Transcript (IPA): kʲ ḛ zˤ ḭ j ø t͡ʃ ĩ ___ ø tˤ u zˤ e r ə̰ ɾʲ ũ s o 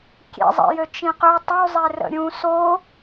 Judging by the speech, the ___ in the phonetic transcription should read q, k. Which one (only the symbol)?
q